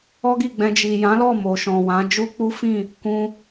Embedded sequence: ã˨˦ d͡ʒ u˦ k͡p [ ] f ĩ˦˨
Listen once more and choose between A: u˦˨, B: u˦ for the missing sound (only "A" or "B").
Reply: B